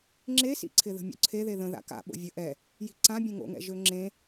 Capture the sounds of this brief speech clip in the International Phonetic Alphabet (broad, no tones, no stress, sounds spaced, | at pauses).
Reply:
ŋ͡ǁ e s ḭ ǀʰ ɪ ð ə̤ mʲ o̰ ǀʰ e ð e ð ə̃ ð a̰ k a̰ ɓ o̰ vʲ ə ʔ ɛ | j i̤ ǀ ã bʲ ẽ ŋ o̰ ŋ ɛ̰ ʒ ø ŋ͡ǁ ẽ